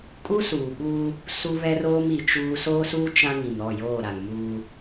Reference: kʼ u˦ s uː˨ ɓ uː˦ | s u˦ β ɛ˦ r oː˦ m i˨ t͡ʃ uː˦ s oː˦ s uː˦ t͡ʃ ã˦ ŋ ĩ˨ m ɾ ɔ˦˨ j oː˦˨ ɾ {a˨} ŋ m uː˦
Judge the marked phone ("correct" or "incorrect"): correct